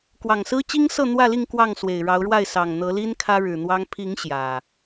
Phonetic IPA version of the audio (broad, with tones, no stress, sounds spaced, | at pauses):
k w ɑ˨˩ ŋ s ɹ̩˦ t͡ɕ i˦ ŋ s ɤ˥˨ n̪ w ä˥˨ l i˥˨ ŋ k w ɑ˥˨ ŋ s w e˨˩ ɪ̯ ɻ ɑ˨˦ ʊ̯ ɻ w a˥˨ ɪ̯ s ɑ˨˩ ŋ n̪ ɤ˨˦ l i˦ n kʰ ä˦ ɻ ɻ̩˨˩ n̪ w ɑ˦ ŋ pʰ i˨˦ ŋ ɕ j ä˨˩